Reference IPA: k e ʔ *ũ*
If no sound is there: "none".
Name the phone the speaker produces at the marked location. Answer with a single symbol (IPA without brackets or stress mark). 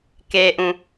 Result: ũ